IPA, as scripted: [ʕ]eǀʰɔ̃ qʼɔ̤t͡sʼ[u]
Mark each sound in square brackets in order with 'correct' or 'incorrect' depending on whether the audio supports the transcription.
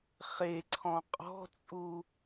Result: incorrect: χ, correct

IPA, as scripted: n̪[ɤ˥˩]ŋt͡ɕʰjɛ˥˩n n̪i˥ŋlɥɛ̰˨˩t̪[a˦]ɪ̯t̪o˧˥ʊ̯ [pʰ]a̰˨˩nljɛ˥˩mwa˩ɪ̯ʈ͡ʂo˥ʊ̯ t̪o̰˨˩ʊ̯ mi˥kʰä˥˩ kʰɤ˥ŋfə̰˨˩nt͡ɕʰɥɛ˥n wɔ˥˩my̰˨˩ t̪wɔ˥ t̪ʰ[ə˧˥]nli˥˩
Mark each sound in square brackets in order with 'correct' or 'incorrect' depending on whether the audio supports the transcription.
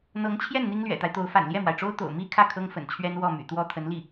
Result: incorrect: ɤ˧˥, correct, incorrect: f, correct

